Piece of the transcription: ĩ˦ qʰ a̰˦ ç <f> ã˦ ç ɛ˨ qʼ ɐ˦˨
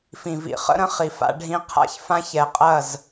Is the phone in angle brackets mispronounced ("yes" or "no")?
no